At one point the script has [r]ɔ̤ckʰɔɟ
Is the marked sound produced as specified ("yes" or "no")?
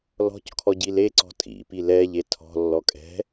no